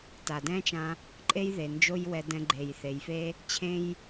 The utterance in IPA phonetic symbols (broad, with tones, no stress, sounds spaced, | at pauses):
t a˩ d ɛ̃˥ t͡ʃ ã˧ | ǃʼ e˥ j ð e˩ n d͡ʒ o˥ j w ɛ˧ d ɛ̃˧ ɡ͡ǃ e˩ j θ e˩ j f e˥ | t͡ɕʰ ẽ˥ j